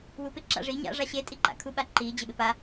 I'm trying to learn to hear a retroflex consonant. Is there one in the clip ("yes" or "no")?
yes